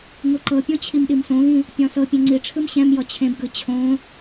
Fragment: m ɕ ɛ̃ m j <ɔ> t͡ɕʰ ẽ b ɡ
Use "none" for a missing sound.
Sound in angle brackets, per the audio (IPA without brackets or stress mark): ɔ